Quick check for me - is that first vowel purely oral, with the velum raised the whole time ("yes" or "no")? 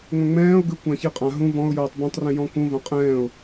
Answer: no